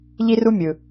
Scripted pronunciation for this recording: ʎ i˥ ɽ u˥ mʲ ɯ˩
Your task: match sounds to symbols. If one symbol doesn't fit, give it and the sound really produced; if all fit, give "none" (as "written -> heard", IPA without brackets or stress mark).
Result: ɽ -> r